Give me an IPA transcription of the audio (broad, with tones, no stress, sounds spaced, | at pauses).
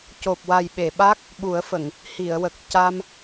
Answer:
c o˨˩ p̚ w a˨˩ j ɓ e˨˩˨ ɓ a˦˥ k̚ | ɓ u˨˩˦ ə̯ f ə˨˩˨ ŋ | h i˨˩˨ ə̯ w ə˨˩ k̚ c a˧ m